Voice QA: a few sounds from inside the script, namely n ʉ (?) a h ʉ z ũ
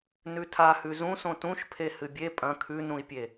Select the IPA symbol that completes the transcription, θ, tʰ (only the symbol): tʰ